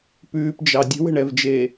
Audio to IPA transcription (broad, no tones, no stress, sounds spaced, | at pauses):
p ʉː p d͡ʒ ɑ dʲ ə̤ w ə̤ ɳ ɛ v d͡ʒ eː